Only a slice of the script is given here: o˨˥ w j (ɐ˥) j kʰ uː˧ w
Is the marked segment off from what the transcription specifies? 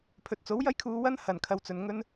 no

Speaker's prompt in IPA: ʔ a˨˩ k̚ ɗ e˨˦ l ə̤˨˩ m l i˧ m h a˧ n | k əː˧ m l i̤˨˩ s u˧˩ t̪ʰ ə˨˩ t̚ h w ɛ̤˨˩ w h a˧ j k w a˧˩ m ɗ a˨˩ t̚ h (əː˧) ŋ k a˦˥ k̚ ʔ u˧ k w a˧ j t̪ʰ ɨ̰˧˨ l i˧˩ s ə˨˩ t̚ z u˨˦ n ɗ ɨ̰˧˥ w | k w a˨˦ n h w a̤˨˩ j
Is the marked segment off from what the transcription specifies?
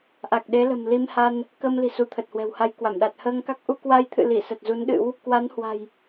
no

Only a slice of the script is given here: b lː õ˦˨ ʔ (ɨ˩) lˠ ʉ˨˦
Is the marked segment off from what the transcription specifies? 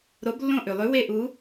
yes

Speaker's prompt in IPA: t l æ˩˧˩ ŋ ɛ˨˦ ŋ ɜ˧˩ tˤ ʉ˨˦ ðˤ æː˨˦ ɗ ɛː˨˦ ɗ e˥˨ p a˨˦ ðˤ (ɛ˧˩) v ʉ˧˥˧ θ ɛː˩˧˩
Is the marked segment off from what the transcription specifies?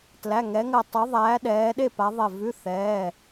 no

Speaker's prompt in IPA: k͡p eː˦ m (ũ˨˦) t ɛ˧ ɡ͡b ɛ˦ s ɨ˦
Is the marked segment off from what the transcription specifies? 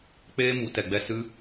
yes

